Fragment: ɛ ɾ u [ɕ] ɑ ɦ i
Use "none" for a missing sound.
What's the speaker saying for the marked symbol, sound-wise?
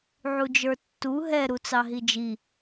t͡s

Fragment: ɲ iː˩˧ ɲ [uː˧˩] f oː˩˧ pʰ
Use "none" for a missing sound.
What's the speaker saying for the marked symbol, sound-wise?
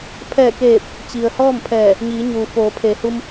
uː˩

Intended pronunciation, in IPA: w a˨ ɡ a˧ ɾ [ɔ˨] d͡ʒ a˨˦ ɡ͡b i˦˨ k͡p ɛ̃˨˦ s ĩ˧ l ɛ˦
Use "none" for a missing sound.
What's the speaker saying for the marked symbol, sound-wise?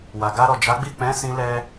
ɔ˨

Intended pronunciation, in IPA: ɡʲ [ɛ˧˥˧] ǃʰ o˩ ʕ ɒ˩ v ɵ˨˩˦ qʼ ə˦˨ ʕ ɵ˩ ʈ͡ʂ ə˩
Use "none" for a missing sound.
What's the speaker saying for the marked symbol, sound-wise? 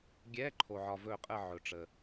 ɛ˧˥˧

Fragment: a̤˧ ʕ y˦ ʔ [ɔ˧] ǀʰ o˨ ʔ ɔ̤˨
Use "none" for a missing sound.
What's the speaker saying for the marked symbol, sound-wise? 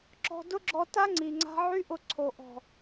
ʊ˧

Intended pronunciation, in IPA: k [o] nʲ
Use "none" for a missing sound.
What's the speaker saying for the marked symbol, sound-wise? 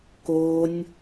o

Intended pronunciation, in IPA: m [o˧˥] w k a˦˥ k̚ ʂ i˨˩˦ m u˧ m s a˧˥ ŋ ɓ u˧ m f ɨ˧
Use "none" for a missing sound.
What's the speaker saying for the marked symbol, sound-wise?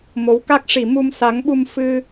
o˧˥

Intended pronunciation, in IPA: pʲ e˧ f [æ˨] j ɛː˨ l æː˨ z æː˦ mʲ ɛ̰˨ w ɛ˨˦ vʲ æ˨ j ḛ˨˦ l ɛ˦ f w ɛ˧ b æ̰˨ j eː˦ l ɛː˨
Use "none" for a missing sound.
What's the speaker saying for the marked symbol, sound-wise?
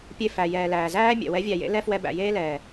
æ˨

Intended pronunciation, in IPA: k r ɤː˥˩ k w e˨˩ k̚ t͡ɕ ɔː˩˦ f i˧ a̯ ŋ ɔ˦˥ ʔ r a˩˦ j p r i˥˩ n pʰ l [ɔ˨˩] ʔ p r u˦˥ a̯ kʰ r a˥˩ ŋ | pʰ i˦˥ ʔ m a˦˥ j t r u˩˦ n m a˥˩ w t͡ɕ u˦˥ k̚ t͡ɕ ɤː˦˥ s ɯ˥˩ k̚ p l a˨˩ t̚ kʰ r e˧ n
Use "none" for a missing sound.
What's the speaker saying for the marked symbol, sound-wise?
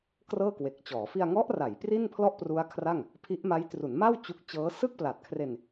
ɔ˥˩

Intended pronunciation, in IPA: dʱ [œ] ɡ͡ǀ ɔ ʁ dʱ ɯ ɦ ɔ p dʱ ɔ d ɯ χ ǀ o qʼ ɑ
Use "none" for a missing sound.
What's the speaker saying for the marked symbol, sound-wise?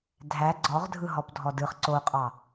æ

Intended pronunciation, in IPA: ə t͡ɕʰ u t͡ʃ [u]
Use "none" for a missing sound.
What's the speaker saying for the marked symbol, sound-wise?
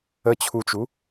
u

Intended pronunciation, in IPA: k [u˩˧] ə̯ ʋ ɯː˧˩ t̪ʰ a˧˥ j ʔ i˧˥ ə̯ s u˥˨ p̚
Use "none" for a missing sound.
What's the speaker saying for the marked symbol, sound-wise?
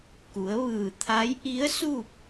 u˩˧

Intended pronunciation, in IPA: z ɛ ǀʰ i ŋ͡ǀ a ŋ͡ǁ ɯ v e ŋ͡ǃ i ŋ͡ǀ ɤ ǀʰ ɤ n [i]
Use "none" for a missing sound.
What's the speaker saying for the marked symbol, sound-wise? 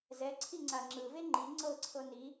i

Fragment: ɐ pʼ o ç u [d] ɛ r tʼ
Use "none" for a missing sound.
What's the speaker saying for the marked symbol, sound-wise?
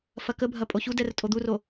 d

